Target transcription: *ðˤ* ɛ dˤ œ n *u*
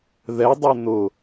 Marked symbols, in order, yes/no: no, no

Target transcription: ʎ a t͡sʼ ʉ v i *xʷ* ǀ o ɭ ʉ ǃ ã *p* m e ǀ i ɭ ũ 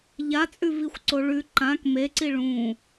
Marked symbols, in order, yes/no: yes, no

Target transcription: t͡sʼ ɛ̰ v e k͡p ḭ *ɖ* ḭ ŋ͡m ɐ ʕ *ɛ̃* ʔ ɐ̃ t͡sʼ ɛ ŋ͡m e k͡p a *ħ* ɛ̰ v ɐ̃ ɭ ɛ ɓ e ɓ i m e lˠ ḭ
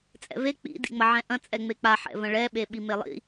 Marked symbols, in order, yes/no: no, yes, yes

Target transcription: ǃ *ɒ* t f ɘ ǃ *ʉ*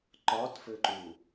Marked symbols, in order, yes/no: yes, no

